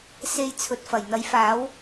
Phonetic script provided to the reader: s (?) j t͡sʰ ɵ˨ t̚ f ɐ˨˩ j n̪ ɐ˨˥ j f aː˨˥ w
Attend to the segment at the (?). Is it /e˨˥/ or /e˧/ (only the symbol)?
e˧